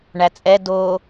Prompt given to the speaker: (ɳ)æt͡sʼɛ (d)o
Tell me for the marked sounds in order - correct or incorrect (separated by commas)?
correct, correct